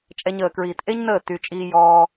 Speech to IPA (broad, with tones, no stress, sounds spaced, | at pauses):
t͡ʃʼ ɛ˦ ɲ əː˧ k ɹ iː˧ t ʔ e˦ ɲ n əː˦˨ t y˧ t͡ʃʼ iː˧ j ɔː˧